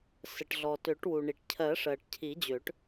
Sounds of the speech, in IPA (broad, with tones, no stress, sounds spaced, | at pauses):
s ə˩ ʈ ɮ ɔ˩ t ø˨˩˦ ʈ w u˩ ɳ i˩ ʈ cʰ ɜ˨˩˦ ʂ ɜ˩ ʈ cʰ i˨˩˦ d͡ʑ ø˨˩˦ ʈ